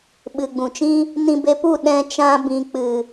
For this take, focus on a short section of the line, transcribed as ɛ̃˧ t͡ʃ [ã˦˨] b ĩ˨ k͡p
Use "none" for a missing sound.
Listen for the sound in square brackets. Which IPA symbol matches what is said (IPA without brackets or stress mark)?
ã˧